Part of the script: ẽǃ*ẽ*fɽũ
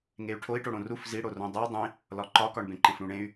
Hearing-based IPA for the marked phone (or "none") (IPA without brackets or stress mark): ẽ